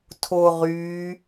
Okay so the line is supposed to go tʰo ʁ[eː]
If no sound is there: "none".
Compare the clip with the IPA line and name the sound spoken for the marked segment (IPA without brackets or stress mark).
yː